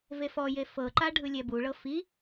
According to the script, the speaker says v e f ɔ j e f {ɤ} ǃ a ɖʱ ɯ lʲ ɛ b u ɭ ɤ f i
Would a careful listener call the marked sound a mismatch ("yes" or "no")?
no